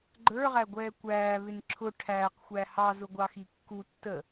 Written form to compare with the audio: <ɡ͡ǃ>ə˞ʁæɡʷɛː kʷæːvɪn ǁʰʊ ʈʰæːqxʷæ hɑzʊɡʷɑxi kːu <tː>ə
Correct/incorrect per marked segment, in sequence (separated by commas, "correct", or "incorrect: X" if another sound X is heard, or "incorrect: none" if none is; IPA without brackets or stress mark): correct, correct